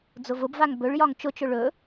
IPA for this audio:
d͡z ʊ v ʊ b v a ŋ b ɵ ɭ j ɒ ŋ t͡ʃ ʊ t͡ʃ ɵ ɭ ɵ

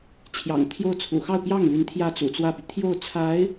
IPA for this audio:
t͡ɕʰ j ɑ̰˨˩ ŋ t̪ʰ j o˥˩ ʊ̯ t͡sʰ ṵ˨˩ x ɑ˥˧ ʊ̯ p j ɑ˥˩ ŋ l y˧˥ n t̪ʰ j ä˥˩ t͡s ṵ˨˩ t͡s w ä˥˩ p y˩ t̪ʰ j o˥˩ ʊ̯ t͡sʰ a˧˥ ɪ̯

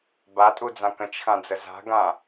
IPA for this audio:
b a tʼ u d͡z ã k ə̃ t͡ʃ x ã d͡z ə z a̤ ɡ ã

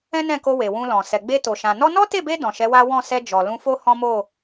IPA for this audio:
ɛ̃˦ n ɛ̃˦˨ k o˧ w e˨ w ũ˧ l ɔ̃˨ s ɛ˨ ɡ͡b e˧ t o˨ ʃ ã˨ n ɔ˧ n ɔ˦ t e˦˨ b e˧ d ɔ̃˨ ʃ ɛ˨˦ w a˦ w ɔ̃˦˨ s ɛ˧ d͡ʒ ɔ˨ l ũ˧ f o˦ h ɔ̃˦ m o˦˨

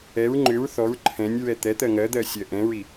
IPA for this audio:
ɛ ɹ ŋ͡ǃ ʏ ɹ θ ɔ ɹ ǃʰ ɛ̃ nʲ ɹ ɛ t̪ ɛ t̪ ɜ ŋ ɜ d̪ ɜ sʲ ɜ ʔ ɛ̃ ɹ i

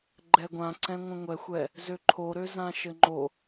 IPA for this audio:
ɡ͡ǃ ɛ ɡʷ ã ǀ ɛ̃ ŋʷ ə̃ ŋʷ ɛ xʷ ɛ | z ø ǃʰ o ɾ ø z ã ʃ ɘ ŋ͡ǃ o

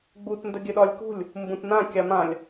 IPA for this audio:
ɡ͡b u t n d ə ɡʲ ɘ ɗ ɒ lʲ k ṳ lʲ | m b ũ t n ã kʲ a m ã lʲ

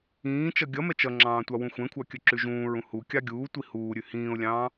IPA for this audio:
ĩː t͡ʃ ʌ ɡʲ ʌ m ɛ t͡ʃ ʌ ŋ͡ǁ ɑ̃ː tʷ ɑ w ũ xʷ ɛ̃ kʷʰ ɑ kʲ ɵ ǁ ʉ ʒ ũː ɹ ũ h u kʲ ɑ ɡʲ uː tʷ i h uː ɾʲ ʉ h ĩː ʊ̯ lʲ ɑ̃ː

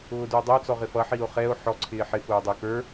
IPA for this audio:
ʊː d u o̯ dˤ ʌ o̯ t͡s ɔ ʁ ɪ f ʌ ħ i o̯ χ ɛ o̯ ħ ɔ ǀʰ ɪː ħ ɪ f ʊː dˤ ə o̯ k ə˞

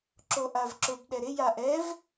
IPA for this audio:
ǁ o ʔ a v ǁ ʊ b ɗ ɛ ɾ ɪ j a ʔ ɛ v

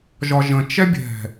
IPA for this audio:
ʒ ɒ ʒ ə̃ t͡ʃ ɛ bʲ ɛ̤

